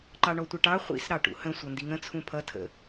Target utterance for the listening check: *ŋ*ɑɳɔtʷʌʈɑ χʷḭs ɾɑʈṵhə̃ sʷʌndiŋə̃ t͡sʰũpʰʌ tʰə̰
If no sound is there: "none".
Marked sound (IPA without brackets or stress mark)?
ǃ